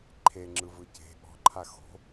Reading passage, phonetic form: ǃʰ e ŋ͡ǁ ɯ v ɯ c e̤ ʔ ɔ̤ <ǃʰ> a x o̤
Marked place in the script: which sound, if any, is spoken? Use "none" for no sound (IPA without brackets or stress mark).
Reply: ǃʰ